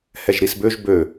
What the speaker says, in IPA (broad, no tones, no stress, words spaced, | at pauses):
hɛʒɾisbøʒ bø